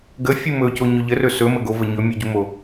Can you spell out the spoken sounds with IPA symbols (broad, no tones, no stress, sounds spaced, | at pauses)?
ɡ ə fʲ u m ɵ c o ɲ ɵ ʎ ə r ɵ s ɵ m ə ɡ o v ə ɲ ɵ mʲ u ɟ u m o